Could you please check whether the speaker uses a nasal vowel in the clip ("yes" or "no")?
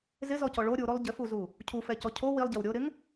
no